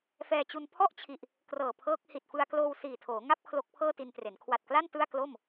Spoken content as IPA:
f ɛː˧ t͡ɕ u˧ n pʰ ɔ˥˩ ʔ t͡ɕʰ i˨˩ ʔ | k r ɤː˨˩ pʰ ɤː˦˥ k̚ h i˨˩ t̚ f ɯ˧ a̯ k l oː˧ w s iː˨˩ tʰ oː˩˦ ŋ a˥˩ p̚ kʰ l o˦˥ k̚ pʰ ɤː˥˩ t i˧ n t r e˩˦ n kʰ w a˨˩ t̚ k l a˥˩ n t ɯ˥˩ a̯ k l o˥˩ m

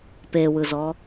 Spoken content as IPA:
p e w ɯ z ɔ

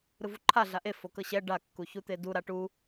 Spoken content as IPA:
ɾ ɯ v u ǃʰ a ɮ a ʔ e f o k ɤ ɕ ɛ ɖ a kː u ç u t̪ e d u ɾ a ʈ u

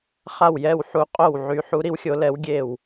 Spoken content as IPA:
χ a˧˩ w j ɛ˧˩ w ħ u˨˦ qʼ o˧˩ w ʕ y˨˦ ħ u˨˦ ɾ i˨˦ w xʲ o˨˦ l ɛ˨˦ w ɡʲ e˧˩ w

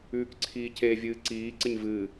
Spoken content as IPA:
ʉː k ǀʰ iː c e vʲ ɨː ǀ iː ǀ ɪ ɲ v ɨː

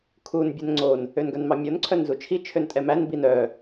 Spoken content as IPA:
kʰ u n bʲ ɛ n ŋ͡ǀ o n | ø n ɡ œ n m ɑ mʲ o n ǀʰ œ n z u t͡ʃʰ i t͡ʃʰ ø n tʼ ɛ m æ n b i n œ

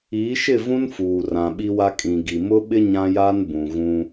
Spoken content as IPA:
iː˨˦ ʃ ɪ˦˨ v ũ˦ n f uː˨ r ã˨ ɓ i˦ w a˦ kʼ ĩ˨ ɡ i˨ m ʊ˦ ɓ ɪ˦ ɲ ã˦ j aː˦ n b ũ˨ ɣ ũ˦

